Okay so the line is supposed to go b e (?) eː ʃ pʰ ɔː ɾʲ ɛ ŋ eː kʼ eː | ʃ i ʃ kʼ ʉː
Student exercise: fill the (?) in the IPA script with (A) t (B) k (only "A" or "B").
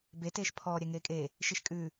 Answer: A